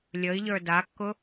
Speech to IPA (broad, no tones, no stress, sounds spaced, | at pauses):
lʲ ə i̯ ʎ ə˞ d a kː ʊ